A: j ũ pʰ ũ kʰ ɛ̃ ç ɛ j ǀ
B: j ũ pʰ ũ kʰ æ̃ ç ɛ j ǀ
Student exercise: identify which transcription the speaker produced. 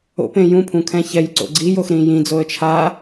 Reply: A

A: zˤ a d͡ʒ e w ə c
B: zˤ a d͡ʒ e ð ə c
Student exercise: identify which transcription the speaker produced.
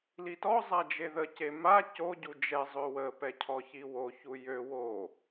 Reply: B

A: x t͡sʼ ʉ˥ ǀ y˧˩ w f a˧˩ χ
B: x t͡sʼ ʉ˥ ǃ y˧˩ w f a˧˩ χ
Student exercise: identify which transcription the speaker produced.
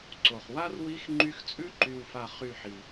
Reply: B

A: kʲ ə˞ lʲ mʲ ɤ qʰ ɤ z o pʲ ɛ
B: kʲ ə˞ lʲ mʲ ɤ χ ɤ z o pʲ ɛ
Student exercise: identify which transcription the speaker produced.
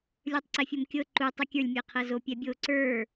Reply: A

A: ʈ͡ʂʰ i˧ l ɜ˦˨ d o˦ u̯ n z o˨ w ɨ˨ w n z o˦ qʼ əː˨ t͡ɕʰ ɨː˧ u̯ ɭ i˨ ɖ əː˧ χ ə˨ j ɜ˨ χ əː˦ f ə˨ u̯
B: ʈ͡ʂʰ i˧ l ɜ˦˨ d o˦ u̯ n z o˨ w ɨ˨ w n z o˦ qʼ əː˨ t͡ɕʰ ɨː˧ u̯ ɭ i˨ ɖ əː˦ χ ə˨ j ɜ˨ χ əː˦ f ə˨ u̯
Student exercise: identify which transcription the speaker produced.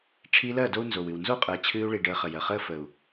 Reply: A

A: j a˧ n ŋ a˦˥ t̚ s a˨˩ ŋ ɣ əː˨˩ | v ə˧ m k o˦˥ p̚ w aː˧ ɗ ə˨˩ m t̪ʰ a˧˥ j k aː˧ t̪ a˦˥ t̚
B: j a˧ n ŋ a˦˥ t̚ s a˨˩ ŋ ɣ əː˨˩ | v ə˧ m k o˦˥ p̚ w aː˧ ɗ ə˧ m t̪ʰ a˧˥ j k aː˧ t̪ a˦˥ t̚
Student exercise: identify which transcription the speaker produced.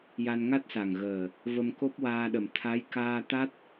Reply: A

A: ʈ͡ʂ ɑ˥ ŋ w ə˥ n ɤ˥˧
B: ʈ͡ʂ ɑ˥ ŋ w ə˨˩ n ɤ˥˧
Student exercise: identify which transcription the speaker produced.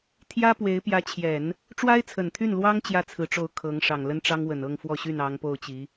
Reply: B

